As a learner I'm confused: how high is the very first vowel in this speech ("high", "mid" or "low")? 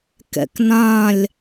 mid